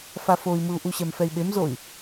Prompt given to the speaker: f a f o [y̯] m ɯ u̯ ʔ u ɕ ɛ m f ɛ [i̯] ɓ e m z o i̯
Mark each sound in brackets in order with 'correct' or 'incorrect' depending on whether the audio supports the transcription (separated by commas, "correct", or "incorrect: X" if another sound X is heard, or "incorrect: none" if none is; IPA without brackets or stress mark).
incorrect: i̯, correct